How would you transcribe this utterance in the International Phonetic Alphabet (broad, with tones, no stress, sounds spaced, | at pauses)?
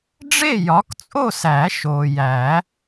ɖ͡ʐ e˥˨ j ɒ˨˥ k t͡sʼ o˥˨ s æ˨˩˦ ʃ o˨ j æ˨˩˦